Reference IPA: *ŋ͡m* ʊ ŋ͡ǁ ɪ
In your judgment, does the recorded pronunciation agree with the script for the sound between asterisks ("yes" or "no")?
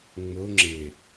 yes